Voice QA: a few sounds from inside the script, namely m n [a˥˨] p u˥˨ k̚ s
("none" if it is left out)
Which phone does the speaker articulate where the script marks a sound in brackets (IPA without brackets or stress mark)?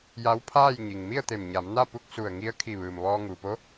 a˥˨